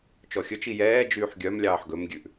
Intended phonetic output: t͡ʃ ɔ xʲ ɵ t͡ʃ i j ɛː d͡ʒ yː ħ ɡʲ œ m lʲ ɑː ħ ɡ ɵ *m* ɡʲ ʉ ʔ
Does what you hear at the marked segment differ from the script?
no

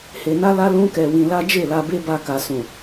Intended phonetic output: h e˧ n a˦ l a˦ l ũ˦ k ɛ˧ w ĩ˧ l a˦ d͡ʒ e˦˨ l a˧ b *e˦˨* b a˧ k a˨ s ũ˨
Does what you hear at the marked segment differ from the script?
yes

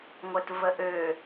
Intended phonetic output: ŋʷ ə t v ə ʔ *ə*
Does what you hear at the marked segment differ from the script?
yes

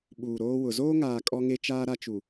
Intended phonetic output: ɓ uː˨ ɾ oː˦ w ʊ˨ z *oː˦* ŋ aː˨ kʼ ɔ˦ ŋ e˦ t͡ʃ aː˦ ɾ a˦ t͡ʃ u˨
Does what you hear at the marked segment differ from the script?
no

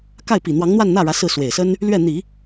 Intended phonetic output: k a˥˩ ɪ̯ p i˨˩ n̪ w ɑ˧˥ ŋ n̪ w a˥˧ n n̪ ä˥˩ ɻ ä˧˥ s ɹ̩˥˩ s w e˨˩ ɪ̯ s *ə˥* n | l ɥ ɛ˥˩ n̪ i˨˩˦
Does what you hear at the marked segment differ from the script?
no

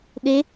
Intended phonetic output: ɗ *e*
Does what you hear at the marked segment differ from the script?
no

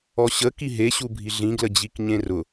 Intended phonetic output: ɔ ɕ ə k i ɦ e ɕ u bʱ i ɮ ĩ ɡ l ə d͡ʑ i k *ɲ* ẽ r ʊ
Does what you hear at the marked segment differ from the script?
no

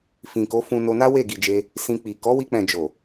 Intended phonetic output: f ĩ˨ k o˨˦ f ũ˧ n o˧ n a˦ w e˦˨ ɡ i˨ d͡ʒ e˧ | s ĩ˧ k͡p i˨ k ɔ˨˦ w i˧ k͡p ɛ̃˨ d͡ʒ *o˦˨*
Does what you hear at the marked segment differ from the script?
yes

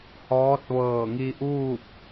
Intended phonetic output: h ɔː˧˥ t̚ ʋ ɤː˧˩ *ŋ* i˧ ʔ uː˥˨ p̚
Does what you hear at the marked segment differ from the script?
no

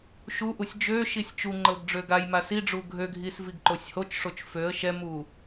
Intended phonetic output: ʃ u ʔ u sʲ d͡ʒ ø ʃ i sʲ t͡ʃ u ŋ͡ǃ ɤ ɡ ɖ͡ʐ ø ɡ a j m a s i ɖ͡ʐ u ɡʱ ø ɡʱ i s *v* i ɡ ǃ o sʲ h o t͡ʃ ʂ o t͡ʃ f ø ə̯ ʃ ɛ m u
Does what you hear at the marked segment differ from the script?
no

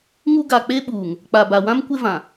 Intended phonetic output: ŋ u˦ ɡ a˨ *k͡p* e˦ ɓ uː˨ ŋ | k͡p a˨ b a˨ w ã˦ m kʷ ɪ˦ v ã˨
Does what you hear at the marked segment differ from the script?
no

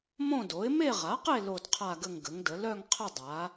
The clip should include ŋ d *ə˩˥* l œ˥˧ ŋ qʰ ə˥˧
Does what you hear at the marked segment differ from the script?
no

